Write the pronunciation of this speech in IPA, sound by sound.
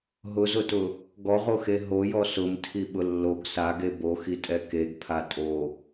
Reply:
ɦ ʊ z ʊ t ʊ | ɡ ɔ ʁ o x e ɦ o j ɔ s ʊ m tʰ i ɓ ʊ lː o ɡ s a ɡ e b o x i tʼ ɛ k e ɡ pʰ a tʼ o

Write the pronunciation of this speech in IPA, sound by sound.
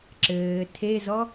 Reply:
ǁ ɘː tʰ e z ɔ

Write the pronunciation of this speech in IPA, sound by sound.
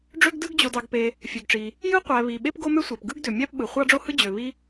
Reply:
ɖ͡ʐ ø˥ ɡ d ɯ˥ ɡ d͡ʑ o˩ d ɑ˩ ɡ p e˩ | fʲ ø˩ ɡ ʈ͡ʂ i˩ | j ɯ˥ qʷ æ˩ β i˩ ɓ e˥ p ɡ o˥ m ø˥ sʷ æ˩ p ɡ ɯ˥ ɡ d ø˩ mʲ æ˥ p ɓ ɯ˩ χʷ ɑ˥ ɖ͡ʐ o˥ h ɯ˥ d͡ʑ ø˩ β i˥

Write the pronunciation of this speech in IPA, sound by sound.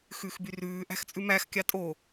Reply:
x ʉ x b y r ʉː ʔ æ̤ x t͡sʼ ʉ m æ x kʲ ɑ tʼ o

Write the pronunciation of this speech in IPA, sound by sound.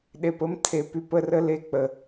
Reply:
ɗ e˨ p ə˦ m tʰ e˨ p y˦˨ p ə˦ r ə˦ l e˦ k͡p ə˨

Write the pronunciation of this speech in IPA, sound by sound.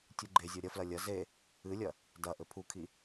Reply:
tʲ u ɡ͡ǃ e zʲ o ɾʲ ɐ f l ɐ lʲ ɐ z e | ɨ lʲ ɐ | d ɐ ʔ ɘ pʰ u kʰ i

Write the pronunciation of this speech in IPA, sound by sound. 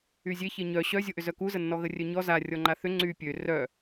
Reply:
y zʲ e ç e ɲ œ ɕ œ zʲ o ʔ ʏ z œ k u z ə nː ɔ ɣ ə rʲ œ ɲ ɔ z a rʲ ɔ ŋ͡ǃ a θ ʏ ŋ͡ǀ y pʲ ø r œ

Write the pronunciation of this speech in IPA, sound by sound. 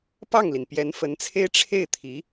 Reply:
p ɑ˥˩ ŋ l i˩ n p j ɛ˧˥ n f ə˧˥ n t͡sʰ e˥ ɪ̯ ʈ͡ʂʰ e˥˩ ɪ̯ t̪ʰ i˧˥

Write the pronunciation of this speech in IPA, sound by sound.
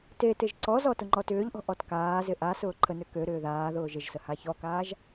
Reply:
t e t ɪ ʒ ǀ ɔ z ɔ t ʊ ŋ͡ǃ ɔ t ʏː ʎ ʔ ɔ̤ ʔ ɔ t k aː z ɪ ʔ a s ʊː ǃʰ ə n ø k ø ɾ ʏː ð aː ð ʊː ʒ ɪ ʒ s ə h a ç ɔ k aː ʒ

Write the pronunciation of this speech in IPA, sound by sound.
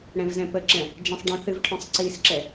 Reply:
ɽ ɛ̃ v z ɛ̃ p ə ǁ ɛ̃ | d͡ʒ ɛ̃ sˤ ɖ œ̃ θ ɨ v ʈʰ œ̃ sˤ ǀ i s ǁ ɛ

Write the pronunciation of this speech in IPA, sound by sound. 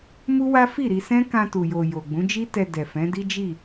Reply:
m u˦ w a˦ f i˦˨ ɾ i˧ s ɛ̃˦ k ã˧ t u˨ j o˨ j o˨ ɡ͡b ũ˨˦ d͡ʒ i˦ t ɛ˧ d ɛ˨ f ɛ̃˨˦ d i˦ d͡ʒ i˦˨

